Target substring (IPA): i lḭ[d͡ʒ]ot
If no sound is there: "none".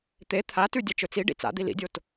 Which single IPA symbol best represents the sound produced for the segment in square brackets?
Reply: dʲ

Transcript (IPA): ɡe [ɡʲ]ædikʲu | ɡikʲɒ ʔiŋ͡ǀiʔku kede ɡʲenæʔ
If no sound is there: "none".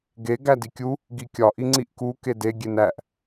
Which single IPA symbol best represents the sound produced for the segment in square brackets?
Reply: ɡ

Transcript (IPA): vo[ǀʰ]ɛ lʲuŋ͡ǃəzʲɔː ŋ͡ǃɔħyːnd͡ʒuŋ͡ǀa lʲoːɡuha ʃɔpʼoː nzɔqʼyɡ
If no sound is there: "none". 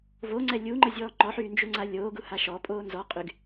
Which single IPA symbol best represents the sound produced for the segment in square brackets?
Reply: ŋ͡ǀ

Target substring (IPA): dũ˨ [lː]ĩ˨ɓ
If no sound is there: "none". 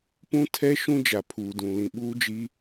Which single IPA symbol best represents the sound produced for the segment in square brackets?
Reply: l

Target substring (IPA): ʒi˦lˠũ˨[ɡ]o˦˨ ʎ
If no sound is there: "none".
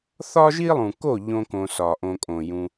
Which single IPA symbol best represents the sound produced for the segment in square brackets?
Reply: k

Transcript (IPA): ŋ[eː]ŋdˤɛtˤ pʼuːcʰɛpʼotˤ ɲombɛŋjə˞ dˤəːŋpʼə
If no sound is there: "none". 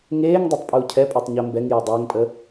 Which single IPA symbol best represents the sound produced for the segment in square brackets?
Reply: eː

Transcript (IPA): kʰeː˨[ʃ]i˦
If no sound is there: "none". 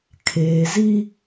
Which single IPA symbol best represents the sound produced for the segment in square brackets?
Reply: z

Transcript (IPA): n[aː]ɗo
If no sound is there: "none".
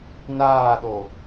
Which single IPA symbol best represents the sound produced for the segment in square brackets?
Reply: aː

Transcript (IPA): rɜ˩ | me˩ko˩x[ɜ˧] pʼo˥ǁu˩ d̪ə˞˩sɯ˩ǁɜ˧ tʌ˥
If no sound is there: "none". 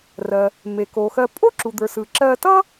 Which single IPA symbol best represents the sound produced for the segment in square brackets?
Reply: ɜ˧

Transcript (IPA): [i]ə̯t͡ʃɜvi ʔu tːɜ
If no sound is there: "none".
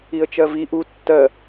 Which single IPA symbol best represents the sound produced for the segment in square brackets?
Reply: i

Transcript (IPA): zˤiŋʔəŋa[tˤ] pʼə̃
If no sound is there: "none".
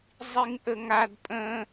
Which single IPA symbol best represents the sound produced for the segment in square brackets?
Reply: d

